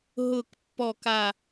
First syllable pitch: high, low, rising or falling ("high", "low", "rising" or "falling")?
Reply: low